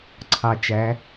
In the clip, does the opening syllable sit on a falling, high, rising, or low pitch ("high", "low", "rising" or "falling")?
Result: low